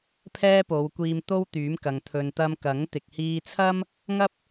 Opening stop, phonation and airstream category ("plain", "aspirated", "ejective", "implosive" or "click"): aspirated